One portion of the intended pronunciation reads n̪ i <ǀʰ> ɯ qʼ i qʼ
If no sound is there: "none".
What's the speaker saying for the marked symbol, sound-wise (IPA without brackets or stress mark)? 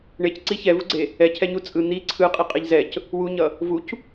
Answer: ǀʰ